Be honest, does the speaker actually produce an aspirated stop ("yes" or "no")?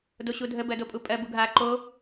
no